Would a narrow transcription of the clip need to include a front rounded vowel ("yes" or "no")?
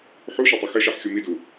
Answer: no